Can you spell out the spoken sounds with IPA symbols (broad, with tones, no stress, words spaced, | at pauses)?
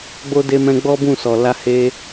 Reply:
ɡ͡bo˧de˧mɛ̃˧ ɡ͡bɔ˦bũ˦˨ sɔ˨la˧he˧